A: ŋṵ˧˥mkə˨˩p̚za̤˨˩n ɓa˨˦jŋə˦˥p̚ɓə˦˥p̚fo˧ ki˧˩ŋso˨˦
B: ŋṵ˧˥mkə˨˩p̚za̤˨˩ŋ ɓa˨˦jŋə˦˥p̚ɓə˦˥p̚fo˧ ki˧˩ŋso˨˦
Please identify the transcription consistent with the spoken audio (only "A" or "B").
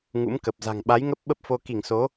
B